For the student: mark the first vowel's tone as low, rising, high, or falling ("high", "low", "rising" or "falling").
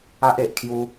high